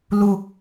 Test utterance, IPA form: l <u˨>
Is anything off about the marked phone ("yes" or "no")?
no